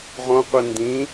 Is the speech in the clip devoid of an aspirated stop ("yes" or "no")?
yes